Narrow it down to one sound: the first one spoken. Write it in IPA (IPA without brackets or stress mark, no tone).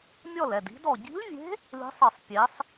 mʲ